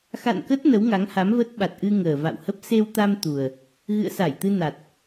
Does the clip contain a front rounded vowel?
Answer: no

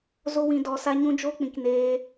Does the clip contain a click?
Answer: no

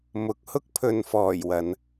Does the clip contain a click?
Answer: no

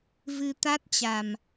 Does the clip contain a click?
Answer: no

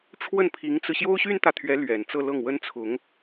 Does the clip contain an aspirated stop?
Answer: yes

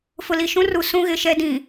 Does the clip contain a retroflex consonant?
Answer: no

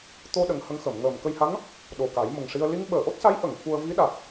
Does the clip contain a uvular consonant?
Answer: no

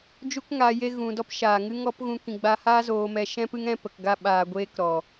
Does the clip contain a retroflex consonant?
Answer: no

